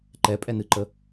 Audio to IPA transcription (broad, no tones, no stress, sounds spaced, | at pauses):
ǃ ɛ pʼ ɛ n ɨ ǃ ə